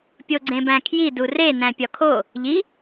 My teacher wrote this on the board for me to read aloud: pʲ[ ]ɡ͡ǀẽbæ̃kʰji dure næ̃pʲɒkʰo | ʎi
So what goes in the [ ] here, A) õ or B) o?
B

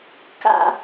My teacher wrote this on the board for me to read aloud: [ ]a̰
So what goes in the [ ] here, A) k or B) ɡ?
A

